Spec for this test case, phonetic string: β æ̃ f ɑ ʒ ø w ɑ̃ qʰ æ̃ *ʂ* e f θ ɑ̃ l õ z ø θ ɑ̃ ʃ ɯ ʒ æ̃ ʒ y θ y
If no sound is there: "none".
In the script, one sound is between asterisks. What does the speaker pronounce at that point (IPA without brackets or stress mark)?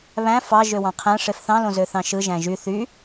ʂ